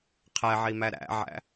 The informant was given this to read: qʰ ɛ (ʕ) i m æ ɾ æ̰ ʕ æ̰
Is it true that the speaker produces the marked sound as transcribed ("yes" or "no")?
yes